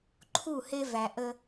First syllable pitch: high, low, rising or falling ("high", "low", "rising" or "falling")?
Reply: falling